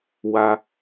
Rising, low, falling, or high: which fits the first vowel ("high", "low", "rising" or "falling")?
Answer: high